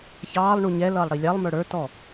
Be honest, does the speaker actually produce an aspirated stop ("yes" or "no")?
no